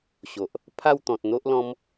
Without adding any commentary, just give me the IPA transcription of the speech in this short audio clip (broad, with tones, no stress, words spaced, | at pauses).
ɕo˨ʔ | pʰa˥˧w t̪ɔ̃˨t̚n̪o˦ʔlɔ̃˦m